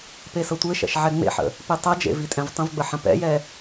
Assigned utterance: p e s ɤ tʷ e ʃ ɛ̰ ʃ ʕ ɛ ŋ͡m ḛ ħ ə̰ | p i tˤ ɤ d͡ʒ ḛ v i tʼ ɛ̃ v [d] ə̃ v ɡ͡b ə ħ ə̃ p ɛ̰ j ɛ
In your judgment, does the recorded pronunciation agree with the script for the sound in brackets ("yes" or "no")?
no